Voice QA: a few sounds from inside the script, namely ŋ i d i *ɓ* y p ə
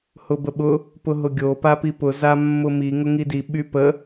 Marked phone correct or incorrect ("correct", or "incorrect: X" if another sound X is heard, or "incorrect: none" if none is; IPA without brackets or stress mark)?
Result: correct